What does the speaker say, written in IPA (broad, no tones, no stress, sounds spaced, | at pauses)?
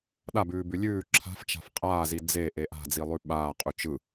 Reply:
ɗ a b ʉː b ʉ lʲ ʉː ǁʰ a̤ f t͡ʃ a̤ f qʼ aː z i d͡z e ʔ e ʔ a̤ d͡z i lˠ ʉ ɓ aː qʼ ʉ t͡ʃ ɯ